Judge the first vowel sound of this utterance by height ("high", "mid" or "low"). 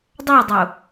low